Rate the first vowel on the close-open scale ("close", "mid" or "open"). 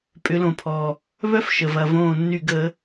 close